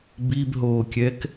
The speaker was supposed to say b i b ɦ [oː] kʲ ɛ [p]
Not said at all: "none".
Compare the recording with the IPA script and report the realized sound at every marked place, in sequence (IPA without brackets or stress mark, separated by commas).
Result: oː, k